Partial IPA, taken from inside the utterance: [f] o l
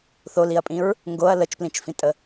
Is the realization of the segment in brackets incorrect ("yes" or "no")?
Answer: yes